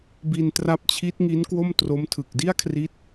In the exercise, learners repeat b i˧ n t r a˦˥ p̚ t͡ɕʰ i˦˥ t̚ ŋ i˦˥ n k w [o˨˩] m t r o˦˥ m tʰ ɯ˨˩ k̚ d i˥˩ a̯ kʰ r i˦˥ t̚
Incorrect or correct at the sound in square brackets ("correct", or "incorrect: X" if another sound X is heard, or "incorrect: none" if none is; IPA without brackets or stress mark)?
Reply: incorrect: o˥˩